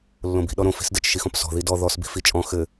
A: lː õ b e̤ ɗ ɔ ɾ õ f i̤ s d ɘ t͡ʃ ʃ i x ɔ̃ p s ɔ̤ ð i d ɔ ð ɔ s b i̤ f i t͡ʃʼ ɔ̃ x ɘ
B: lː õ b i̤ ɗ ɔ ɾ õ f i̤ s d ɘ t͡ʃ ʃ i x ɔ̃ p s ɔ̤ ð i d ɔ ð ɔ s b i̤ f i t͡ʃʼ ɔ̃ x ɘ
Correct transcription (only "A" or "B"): B